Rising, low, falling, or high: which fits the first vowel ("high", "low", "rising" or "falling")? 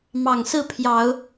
low